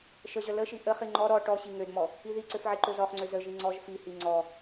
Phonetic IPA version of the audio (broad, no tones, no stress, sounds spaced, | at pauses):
ʃ ə ʑ ə l ə ʃ i ʔ ə χ i ŋ͡ǃ ɔ ɾ ɔ ʈ ɔ ɕ i ŋ ø d m ɔ | i ð i ǀ ø f ʕ i ǃ ø z ɔ χ ŋ͡ǀ ø z ə ʒ i ŋ͡ǀ ɔ ʒ f i h i ŋ͡ǀ ɔ